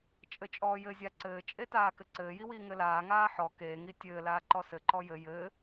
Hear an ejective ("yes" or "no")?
yes